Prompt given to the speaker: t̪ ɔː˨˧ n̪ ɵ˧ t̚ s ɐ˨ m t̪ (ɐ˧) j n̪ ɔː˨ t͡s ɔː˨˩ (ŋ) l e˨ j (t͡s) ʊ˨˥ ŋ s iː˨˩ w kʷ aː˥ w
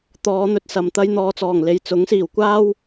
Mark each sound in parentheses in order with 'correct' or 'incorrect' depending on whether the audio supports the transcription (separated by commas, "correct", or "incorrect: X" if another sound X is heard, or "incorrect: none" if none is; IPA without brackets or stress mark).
correct, correct, correct